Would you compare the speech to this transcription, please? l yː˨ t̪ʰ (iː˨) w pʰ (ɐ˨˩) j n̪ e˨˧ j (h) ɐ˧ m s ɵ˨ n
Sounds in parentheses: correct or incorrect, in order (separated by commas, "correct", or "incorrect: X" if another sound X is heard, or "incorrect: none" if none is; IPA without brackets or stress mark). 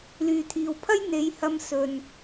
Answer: correct, incorrect: ɐ˥, correct